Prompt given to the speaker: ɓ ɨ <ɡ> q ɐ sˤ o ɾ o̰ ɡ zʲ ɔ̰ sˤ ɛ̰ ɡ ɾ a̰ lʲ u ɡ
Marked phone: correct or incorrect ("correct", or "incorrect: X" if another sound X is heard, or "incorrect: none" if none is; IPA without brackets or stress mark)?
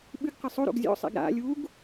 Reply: correct